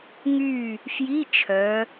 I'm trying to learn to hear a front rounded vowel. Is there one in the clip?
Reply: yes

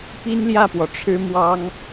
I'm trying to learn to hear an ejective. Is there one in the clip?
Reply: no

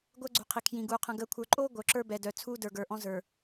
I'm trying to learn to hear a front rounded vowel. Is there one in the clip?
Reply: yes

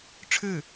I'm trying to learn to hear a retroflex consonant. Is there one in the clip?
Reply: yes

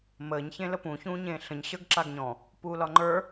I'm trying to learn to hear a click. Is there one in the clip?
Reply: yes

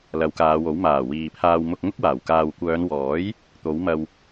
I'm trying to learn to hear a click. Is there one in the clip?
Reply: no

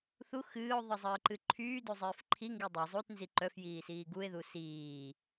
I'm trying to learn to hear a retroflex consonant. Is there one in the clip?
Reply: no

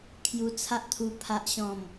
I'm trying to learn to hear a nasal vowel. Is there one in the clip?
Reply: yes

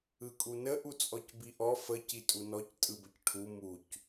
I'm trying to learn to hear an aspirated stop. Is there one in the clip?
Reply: yes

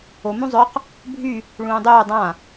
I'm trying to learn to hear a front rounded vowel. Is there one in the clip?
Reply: yes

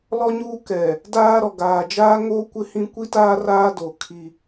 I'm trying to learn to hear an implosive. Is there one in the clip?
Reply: no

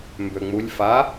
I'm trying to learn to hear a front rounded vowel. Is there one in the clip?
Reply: yes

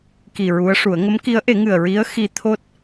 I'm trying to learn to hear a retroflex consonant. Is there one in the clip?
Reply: yes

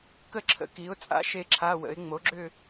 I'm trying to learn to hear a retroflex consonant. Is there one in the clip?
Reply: no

